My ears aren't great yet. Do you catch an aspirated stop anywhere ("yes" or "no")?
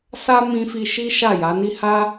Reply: no